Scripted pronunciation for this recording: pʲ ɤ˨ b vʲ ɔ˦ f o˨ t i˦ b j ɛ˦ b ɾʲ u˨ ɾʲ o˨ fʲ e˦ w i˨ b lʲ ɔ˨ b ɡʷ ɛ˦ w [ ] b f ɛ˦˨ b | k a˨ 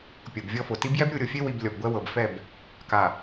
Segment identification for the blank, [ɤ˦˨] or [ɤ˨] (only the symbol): ɤ˨